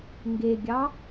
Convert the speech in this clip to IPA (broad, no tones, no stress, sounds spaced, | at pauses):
ŋ ɡ e ɡʲ ɑ